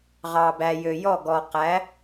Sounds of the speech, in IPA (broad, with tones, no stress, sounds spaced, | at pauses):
ʁ ɑ˨ b æ˨ j ø˨ j ɔ˥˨ ɡ ɔ˨ q æ˨˥